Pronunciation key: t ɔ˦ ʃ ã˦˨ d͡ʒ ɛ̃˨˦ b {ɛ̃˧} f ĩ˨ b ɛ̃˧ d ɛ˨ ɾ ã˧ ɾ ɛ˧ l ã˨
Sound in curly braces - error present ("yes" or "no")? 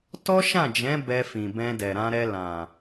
yes